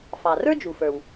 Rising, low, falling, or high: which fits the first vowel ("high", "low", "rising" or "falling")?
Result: low